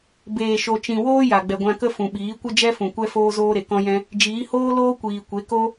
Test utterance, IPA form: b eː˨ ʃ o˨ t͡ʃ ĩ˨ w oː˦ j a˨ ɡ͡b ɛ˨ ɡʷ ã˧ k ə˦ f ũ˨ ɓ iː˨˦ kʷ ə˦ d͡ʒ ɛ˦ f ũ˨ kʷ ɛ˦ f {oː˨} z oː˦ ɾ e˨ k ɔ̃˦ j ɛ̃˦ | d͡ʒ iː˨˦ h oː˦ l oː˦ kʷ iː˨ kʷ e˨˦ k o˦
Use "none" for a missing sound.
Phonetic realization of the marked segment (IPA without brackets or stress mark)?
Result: oː˦